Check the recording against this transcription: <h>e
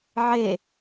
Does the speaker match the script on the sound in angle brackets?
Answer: no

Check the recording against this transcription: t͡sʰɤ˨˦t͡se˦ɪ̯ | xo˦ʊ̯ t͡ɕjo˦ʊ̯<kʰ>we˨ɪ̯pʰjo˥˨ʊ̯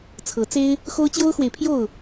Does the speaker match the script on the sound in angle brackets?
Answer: no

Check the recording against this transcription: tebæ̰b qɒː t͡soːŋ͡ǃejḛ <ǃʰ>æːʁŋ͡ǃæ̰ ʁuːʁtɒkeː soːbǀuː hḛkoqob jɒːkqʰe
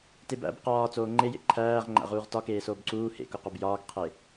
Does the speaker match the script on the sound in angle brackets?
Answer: yes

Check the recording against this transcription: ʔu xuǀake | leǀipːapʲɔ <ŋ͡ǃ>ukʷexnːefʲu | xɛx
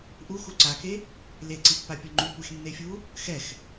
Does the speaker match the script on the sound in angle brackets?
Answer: yes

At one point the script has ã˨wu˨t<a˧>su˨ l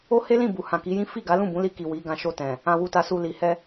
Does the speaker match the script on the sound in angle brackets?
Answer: no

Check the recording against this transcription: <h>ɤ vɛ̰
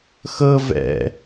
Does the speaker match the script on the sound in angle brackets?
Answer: no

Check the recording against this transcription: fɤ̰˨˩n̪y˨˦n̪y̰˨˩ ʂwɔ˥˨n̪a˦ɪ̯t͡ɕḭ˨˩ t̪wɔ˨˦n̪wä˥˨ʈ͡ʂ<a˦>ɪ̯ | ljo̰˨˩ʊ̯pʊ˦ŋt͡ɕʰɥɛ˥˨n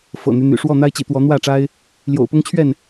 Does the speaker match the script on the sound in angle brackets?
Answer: yes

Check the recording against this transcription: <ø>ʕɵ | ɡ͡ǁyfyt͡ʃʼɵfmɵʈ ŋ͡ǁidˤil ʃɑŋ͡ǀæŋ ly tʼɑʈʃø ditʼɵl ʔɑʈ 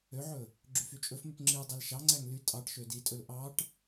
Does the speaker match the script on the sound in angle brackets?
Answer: yes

